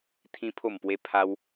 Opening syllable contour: high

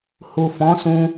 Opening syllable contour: low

